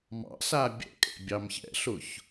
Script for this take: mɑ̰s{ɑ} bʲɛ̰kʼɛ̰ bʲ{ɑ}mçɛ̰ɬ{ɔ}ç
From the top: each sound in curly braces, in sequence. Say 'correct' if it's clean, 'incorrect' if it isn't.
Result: incorrect, correct, incorrect

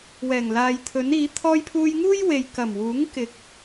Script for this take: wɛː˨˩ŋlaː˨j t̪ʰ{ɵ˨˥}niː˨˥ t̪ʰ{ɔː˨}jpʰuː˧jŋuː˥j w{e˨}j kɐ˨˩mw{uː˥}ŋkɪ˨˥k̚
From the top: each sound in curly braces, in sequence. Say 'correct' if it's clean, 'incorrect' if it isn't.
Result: correct, incorrect, correct, incorrect

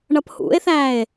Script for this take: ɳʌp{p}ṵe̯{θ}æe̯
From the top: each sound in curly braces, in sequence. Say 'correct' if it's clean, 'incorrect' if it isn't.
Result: incorrect, correct

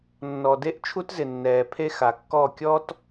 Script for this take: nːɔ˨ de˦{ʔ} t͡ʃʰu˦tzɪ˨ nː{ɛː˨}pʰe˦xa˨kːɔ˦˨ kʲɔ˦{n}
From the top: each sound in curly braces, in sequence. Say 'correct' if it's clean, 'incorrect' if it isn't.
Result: correct, correct, incorrect

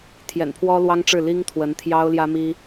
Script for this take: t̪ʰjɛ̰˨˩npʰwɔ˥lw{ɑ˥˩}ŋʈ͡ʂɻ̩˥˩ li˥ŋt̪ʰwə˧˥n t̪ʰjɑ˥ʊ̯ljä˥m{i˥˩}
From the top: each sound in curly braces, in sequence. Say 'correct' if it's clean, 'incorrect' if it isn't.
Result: incorrect, incorrect

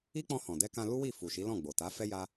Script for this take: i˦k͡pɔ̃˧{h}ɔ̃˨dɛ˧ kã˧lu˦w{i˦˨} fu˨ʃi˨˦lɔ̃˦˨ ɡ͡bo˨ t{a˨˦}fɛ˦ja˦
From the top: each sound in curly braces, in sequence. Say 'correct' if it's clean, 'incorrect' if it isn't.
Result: correct, correct, correct

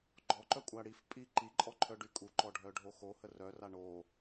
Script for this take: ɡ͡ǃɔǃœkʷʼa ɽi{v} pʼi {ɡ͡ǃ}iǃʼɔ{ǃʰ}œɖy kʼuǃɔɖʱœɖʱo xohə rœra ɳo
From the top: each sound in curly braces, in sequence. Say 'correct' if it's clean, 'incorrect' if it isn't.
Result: incorrect, incorrect, correct

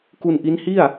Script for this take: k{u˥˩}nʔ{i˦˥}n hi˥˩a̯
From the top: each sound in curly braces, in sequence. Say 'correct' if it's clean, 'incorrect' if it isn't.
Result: incorrect, correct

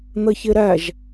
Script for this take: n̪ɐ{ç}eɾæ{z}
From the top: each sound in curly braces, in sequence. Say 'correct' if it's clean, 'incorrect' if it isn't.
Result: correct, incorrect

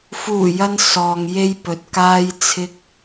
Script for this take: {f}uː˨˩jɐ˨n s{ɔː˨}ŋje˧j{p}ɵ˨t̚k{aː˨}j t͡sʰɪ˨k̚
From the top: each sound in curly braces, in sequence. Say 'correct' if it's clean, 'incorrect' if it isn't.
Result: correct, correct, correct, incorrect

